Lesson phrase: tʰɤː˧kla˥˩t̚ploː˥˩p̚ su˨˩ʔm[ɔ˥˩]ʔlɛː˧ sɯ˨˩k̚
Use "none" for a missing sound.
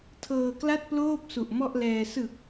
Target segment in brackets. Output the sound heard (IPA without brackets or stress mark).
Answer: ɔ˥˩